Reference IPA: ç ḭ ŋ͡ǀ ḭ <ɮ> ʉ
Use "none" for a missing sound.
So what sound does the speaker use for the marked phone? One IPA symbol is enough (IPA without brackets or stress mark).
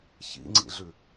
ɮ